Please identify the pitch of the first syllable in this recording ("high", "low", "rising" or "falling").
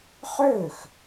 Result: falling